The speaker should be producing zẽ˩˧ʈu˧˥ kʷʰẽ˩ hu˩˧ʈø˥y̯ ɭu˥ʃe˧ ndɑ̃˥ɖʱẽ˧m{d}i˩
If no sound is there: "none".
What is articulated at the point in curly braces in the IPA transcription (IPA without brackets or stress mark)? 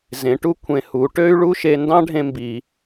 b